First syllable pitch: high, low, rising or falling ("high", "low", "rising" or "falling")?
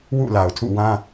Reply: falling